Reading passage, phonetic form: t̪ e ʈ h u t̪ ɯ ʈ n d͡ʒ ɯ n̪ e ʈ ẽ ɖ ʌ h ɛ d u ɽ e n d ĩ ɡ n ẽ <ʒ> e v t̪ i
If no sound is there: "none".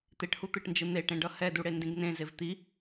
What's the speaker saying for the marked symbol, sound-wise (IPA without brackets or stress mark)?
z